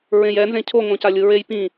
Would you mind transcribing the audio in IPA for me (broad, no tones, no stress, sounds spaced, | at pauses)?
ɹ ẽ j ɛ n z ẽ cʰ o ŋ õ c a lʲ ɯ ɹ e j p ĩ